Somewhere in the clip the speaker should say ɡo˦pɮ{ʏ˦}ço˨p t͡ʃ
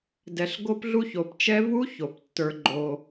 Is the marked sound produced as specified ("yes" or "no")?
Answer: no